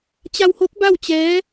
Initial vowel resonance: oral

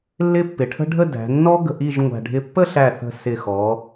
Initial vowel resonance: oral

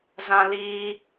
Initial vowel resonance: nasal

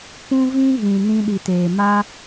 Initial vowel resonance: nasal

